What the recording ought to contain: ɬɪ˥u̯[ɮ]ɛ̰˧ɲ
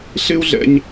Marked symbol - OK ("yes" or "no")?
yes